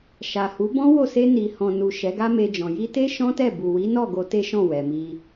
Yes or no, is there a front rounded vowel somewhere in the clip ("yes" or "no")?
no